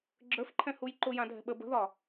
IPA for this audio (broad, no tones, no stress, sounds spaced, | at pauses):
ɡ͡ǁ ə˞ f ǃʰ ɛ̃ h u j ǃ ʊ j ã dʱ ɛ̤ ɓ ə b ə̤ ð ɒ